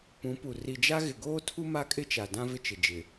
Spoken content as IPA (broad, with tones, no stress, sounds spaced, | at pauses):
p ũ˨˦ p u˨ r i˨ d͡ʒ a˦ ɣ ɪ˨ ɡ oː˦ tʰ u˦ m a˦ kʼ ɪ˦ t͡ʃ a˨ d ã˦ v ɪ˦ t͡ʃ ɪ˨ d͡ʒ ɪ˨